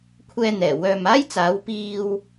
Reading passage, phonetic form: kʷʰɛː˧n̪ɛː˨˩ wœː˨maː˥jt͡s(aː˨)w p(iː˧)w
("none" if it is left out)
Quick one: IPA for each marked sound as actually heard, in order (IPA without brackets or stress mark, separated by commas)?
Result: aː˨˥, iː˧